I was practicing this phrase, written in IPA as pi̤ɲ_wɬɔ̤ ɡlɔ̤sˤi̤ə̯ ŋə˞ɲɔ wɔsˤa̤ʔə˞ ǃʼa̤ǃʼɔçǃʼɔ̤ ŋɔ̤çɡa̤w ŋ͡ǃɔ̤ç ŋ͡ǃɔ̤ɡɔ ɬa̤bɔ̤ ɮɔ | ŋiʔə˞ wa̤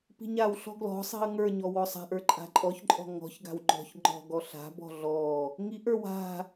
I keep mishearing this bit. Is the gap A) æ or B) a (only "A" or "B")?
B